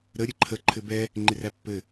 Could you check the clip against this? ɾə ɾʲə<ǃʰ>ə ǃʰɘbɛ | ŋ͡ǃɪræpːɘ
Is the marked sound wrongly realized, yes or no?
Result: no